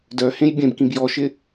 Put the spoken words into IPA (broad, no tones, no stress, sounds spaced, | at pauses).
d œ h ẽ j bʲ ẽ b k ĩ b j ɔ ʃ ɪ